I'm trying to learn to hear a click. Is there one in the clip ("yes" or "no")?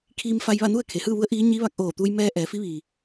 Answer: no